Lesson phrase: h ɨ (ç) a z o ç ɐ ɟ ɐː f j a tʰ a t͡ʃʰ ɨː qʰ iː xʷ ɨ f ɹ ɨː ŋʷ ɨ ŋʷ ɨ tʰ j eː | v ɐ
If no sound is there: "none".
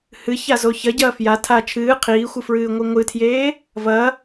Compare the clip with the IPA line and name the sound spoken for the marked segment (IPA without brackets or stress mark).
ç